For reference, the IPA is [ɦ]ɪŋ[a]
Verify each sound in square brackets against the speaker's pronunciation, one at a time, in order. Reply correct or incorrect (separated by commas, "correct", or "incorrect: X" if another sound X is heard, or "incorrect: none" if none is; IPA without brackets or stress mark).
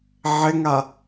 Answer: incorrect: ʕ, correct